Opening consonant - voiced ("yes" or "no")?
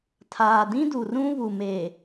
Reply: no